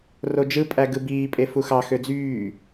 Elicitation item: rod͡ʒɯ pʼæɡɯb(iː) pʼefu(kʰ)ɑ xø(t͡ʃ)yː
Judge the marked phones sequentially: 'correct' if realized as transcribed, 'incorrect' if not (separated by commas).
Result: correct, incorrect, incorrect